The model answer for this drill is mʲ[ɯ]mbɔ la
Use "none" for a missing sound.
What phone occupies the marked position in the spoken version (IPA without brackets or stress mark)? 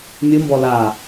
ɯ